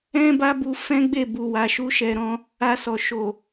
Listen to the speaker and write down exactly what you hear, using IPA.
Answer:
ɛ̃˦ba˦bu˧ fɛ̃˦ɡ͡be˦˨ bu˨wa˨ʃu˧ ʃɛ˨ɾɔ̃˧ | a˧sɔ˨ ʃo˨

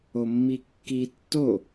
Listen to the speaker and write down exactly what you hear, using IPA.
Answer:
omːikːi tːo

